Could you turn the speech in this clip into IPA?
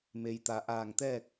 me˩jt̪a˩ʔaː˧˩ŋt̪ɛː˥˨k̚

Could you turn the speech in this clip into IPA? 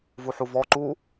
vuħuvɔ ǃu

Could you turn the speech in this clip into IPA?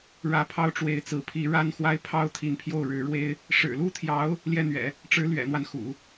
ɻä˧˥pʰɑ˥ʊ̯ʈ͡ʂwe˧˥ɪ̯ t͡sɹ̩˧˥pʰi˧˥ ɻa˥nxwa˥ɪ̯ pʰɑ˥ʊ̯t̪ʰi˧˥npʰjo˥˩ʊ̯ ɻɻ̩˧˥ɻwe˥ɪ̯ | ʂɻ̩˨˩lu˥˩t̪ʰjɑ˧˥ʊ̯ | ljɛ˥˩n̪ɥɛ̰˨˩˦ | ʈ͡ʂɻ̩˧˥lɥɛ̰˨˩n̪wa˦nxṵ˨˩˦

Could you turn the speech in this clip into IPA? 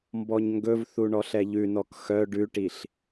mbɔɲŋɡɵvθu ɳɔɬɛʎʉnɔk xœ ɖʉʈiɬ

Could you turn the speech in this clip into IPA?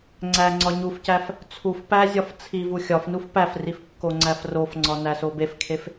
ŋ͡ǀæŋ͡ǀɒ ɲufcæf | t͡sʰuf pæzʲɒf t͡sʰivu xʲɒfnuf pæfrif kːoŋ͡ǀæfrofŋ͡ǀɒ næsobefkʰef

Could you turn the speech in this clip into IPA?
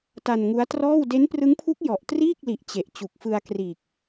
ta˧nŋu˦˥a̯trɔː˥˩w de˦˥nprɯ˦˥ŋpʰu˦˥k̚jɔ˨˩ʔ triː˥˩k̚li˨˩ʔ t͡ɕe˨˩ʔ t͡ɕu˨˩k̚fɯ˧a̯kriː˨˩k̚

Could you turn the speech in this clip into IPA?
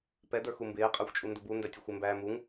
pɛ də˞xumbɪː qʼə˞xʷt͡ʃʼundʊbu ndætʲʊxʷɪ mbæːmuŋ

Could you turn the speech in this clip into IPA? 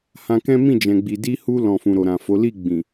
hã˧kɛ̃˦ mĩ˦˨d͡ʒɛ̃˨ɡ͡bi˨ di˧hu˧ lɔ̃˨fũ˨ɾo˨ ɾã˨fo˨˦ li˦˨ɡ͡bĩ˨

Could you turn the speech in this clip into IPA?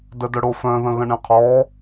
dədœɽofœ̃ ðə̃ɣə̃ɳẽqʰɔ

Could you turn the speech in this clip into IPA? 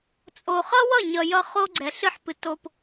t͡sʼo˨ χʌ˦wʌ˦˨ɲʌ˨ jʌ˦ χo˦ɡ͡ǀɛ˨ ɬɨ˦˨ħpɨ˨ to˨p

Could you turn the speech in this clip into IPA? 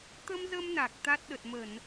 t̪ə˧mzə˧m na˨˩k̚t̪a˦˥t̚ ɗə˨˩t̚mə˧˩˨n

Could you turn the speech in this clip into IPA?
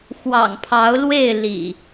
xwɑ̰˨˩ŋpʰɑ˨˦ʊ̯lwe˥˨ɪ̯ lḭ˨˩

